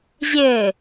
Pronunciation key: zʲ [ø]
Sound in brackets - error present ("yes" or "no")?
no